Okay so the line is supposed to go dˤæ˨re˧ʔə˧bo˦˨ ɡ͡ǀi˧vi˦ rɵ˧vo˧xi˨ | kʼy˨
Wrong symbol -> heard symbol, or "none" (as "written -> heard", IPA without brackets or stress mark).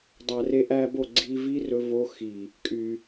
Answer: ə˧ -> æ˧